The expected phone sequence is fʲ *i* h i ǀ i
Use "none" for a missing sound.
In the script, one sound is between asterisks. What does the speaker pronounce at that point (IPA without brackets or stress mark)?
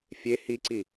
e